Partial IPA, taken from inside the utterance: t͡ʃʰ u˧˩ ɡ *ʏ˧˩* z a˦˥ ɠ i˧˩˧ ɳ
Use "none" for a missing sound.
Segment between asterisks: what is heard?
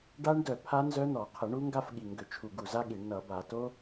u˧˩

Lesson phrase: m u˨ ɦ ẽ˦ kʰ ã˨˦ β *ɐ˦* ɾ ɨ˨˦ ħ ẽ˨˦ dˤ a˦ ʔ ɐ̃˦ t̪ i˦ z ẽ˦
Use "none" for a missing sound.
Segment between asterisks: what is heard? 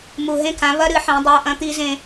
ɐ˦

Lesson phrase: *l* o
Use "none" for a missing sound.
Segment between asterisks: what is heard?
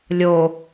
lʲ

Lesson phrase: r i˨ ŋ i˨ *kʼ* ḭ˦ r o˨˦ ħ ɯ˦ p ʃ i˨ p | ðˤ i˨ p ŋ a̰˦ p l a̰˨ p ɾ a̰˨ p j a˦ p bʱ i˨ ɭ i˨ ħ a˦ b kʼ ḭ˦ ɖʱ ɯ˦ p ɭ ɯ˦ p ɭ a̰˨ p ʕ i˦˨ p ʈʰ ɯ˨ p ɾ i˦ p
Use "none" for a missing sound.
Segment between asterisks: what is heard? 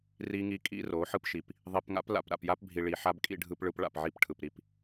kʼ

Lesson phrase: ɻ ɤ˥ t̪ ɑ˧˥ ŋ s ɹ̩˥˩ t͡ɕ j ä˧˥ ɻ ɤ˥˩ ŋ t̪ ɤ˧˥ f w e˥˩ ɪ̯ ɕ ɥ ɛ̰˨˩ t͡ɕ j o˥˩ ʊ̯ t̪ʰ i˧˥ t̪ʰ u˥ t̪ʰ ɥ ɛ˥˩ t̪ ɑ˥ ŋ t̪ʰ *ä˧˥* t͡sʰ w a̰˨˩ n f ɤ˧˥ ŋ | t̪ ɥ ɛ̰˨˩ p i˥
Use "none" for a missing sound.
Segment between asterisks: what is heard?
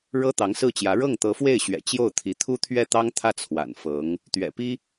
ä˥˩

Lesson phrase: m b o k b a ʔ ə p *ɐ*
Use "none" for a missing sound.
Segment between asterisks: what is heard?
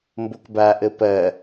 ɐ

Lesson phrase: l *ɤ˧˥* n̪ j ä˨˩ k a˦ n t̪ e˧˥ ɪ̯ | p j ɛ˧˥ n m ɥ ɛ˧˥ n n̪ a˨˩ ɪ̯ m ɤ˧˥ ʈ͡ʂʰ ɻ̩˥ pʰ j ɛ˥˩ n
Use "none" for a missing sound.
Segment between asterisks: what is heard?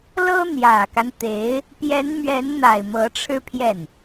ɤ˥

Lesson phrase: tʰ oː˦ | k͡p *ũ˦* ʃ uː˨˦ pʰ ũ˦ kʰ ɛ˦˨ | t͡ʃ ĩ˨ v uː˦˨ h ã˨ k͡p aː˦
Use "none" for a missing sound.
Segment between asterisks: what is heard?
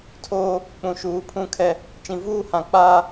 ũ˨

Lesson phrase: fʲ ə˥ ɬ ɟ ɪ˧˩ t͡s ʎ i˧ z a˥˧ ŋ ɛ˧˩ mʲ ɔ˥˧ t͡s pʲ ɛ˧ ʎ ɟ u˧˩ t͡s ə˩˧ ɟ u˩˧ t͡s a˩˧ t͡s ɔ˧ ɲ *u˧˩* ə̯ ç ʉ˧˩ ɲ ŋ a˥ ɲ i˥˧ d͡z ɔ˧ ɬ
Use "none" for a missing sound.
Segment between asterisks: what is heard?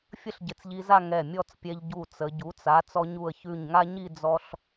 u˧˩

